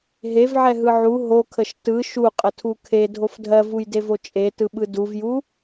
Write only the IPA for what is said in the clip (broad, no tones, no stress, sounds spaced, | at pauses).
ɦ e v ʕ ɛ ɦ ɯ ʕ u ɦ o kʰ ə ʃ t ɯ ʃ u qʼ ə tʰ u kʰ e dʱ o f dʱ ɜ v u j d e v o t͡ʃʼ e t ɯ ɓ ɯ d u v j u